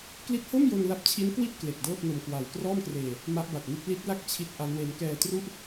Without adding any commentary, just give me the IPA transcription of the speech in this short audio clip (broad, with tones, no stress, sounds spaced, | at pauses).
k l i˦˥ t̚ h o˥˩ m j o˧ n l a˦˥ p̚ t͡ɕʰ i˦˥ n k w i˥˩ t̚ k l e˨˩ k̚ d ɤː˥˩ p̚ n o˧ m k w a˨˩ w k r ɔː˥˩ m k r eː˧ | m a˦˥ ʔ b a˨˩ t̚ n i˥˩ t̚ l i˦˥ t̚ l a˥˩ k̚ t͡ɕʰ i˦˥ t̚ ʔ a˦˥ n w e˦˥ n k ɛː˧ t r u˥˩ ʔ